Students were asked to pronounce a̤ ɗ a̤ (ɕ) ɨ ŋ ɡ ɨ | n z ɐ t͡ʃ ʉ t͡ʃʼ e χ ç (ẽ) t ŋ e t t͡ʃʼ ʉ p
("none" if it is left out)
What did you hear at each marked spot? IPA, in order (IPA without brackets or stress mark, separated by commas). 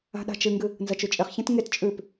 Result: t͡ʃ, ẽ